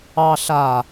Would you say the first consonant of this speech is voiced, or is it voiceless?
voiceless